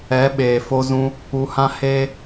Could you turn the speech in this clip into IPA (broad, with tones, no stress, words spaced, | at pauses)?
ɛ˨˦ɓeː˨fo˧zũ˧ | u˧hã˦ heː˦